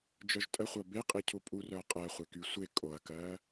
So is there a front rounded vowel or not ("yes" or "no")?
yes